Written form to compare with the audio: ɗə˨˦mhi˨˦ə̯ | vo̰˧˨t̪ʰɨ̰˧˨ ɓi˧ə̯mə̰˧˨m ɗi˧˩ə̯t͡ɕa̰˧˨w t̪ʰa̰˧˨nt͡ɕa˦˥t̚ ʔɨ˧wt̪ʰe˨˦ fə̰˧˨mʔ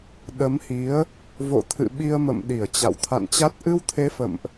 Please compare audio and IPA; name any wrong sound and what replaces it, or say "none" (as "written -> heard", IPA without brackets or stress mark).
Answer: none